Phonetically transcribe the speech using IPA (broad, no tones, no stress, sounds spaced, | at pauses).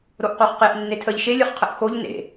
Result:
ɾ o ʔ q o χ q e ʔ nː e tʰ ə ʎ ʃ e lʲ ʌ χ qʰ ə ʔ x o ʎ n ḛ